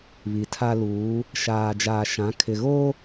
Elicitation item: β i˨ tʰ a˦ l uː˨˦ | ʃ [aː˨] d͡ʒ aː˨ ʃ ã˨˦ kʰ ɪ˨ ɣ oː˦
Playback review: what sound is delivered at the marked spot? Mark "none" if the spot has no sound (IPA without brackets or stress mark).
aː˨